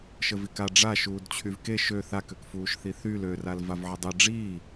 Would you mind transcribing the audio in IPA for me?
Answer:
ʃ ə v i k a ɖ͡ʐ a ʃ uː d t͡ɕʰ y v k e ʃ ø θ a k ø k f uː ʃ θ i θ y l ø r a l v a v ʕ ə dˤ i ɖ͡ʐ iː

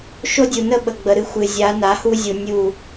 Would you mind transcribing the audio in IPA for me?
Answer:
ʃ o˦ dʲ u˨ n ə˦ ɓ ə˨ ɡ͡b ə˨ ɾ ɨ˦ xʷ ɨ˨ zʲ a˨˦ n a˨˦ h u˦ zʲ u˨ nʲ u˦˨

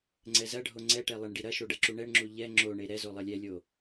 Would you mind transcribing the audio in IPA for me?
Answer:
ŋ͡ǀ ɛ z ɐ ɖʱ o ŋ͡ǀ ɛ ʈ ɛ lˠ e ɳ ɖ i ɾ ɐ ʃ o ɖ ɐ ǁ u ɳ ɛ ɳ ŋ͡ǁ u ʎ ɛ ŋ͡ǁ o ɳ e ɾ ɛ z o lˠ ɐ lʲ ɛ lʲ o

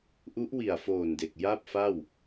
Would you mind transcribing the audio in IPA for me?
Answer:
ʔ u˦˥ ʔ w i˨˩ a̯ f oː˨˩ n d e˨˩ k̚ j a˥˩ p̚ f a˥˩ w

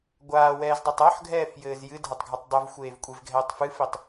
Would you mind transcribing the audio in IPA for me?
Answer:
ɡʷ aː w ɛː z dˤ e tˤ ɔ ħ ɡʱ ɛː f j ɘː z j ɨ dʱ ɐ tˤ ɡʱ ɐ tˤ dˤ u v xʷ eː v kʷʼ e v ɡʱ ɛː tˤ f ɨ f i tˤ

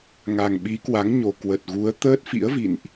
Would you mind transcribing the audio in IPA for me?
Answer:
ŋ a˨˩ ŋ ɓ i˨˦ k w a˨˦ ŋ ɲ o˨˩ k w ə˨˩ t̚ ɣ u˨˦ ə̯ t̪ əː˦˥ t̚ f ḭ˧˥ ə̯ v ḭ˧˨ n ʔ

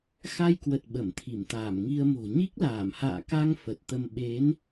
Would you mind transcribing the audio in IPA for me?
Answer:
x a˧ j k w ə˨˩ t̚ ɓ ə˧˩ m t̪ʰ i˧˩ m t̪ aː˧˩ m ŋ i˧ ə̯ m o̤˨˩ ɲ i˦˥ k̚ l aː˧˩ m h a̰ː˧˨ k a˧ ŋ f ə˨˩ t̚ t̪ ə˧ m ɓ e˨˦ n

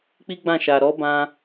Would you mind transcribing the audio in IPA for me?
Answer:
k͡p i˦ ɡ͡b ã˦˨ ʃ a˨ ɾ ɔ˨˦ b ã˧

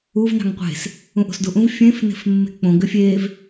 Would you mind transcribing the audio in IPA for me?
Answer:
u v n ɑ̤ ŋ qʷ e̤ s | ũ ʔ o̤ s d u ʔ ũ v fʲ ẽ f n e̤ f mː e̤ k͡p õ ɡ ʏ fʲ e v

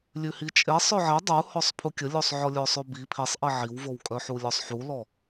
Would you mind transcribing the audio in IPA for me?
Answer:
lʲ ʉ h i t͡ʃʼ e sˤ œ ʕ e dˤ u h ɔ sˤ pʰ u kʲ ə lʲ o sˤ ʕ ɔ lʲ œ sˤ ʉ b i pʰ i sˤ ʔ i ʕ i w v o w kʼ œ ħ u lʲ ɔ sˤ ħ u l ɔ

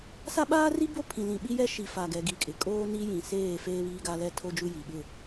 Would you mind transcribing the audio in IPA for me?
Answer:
s a˦ ɓ aː˦ r i˦ b o˦ pʰ ĩ˨ l ĩ˨ ɓ i˦ j ɛ˦ ʃ i˨ f a˨ ɡ ɛ˨ ɡ i˨ kʼ ɪ˨ kʼ oː˦ n i˦ j ĩ˨ s eː˦˨ f eː˦ β iː˦ ɡ a˦ l ɛ˦ tʰ o˦ d͡ʒ u˦ j i˨ ɓ ɪ˦˨

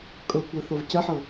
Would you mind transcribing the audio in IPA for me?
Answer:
kʼ ɤ kʷ ɜ θ ɤ v c ɜ ħ ɤ

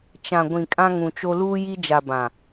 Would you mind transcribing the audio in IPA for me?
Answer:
t͡ʃ ã˨ ɡʷ ĩ˨ kʼ ã˦ ŋ ũ˨ t͡ʃ o˦ l uː˦ j i˦ d͡ʒ a˨ b ã˨

